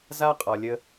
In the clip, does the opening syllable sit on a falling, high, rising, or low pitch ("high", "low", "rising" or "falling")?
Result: high